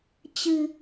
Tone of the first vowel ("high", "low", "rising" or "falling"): low